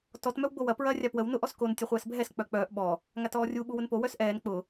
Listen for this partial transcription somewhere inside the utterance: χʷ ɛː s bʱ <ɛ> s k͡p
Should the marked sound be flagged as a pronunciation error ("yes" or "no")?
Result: no